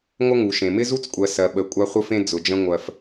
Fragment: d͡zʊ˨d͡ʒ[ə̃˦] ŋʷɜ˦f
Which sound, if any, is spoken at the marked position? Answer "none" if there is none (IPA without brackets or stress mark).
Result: ə̃˦